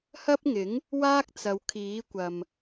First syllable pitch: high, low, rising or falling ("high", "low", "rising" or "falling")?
high